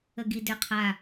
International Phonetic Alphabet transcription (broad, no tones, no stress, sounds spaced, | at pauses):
ə ɡ i d ʏ qʰ a